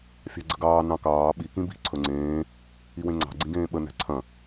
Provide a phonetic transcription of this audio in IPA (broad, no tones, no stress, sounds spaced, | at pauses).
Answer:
fʲ ɑ̤ ɡ͡ǀ ə ɡ ɑː n ɑ̃ k ɑː ɓ i k ĩ b i̤ ǀʰ ɵ ŋ͡ǀ ẽː | i w ẽ ŋ͡ǀ ɑ̤ ɡ͡ǀ ĩ ɡ ẽː ɓ ə n æ̤ ǀʰ ɐ̃